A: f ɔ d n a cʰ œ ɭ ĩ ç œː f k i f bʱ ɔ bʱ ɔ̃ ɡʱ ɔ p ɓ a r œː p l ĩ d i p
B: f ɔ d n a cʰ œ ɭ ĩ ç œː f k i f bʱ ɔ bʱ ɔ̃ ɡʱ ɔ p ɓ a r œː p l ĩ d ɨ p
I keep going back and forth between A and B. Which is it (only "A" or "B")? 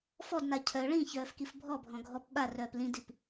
A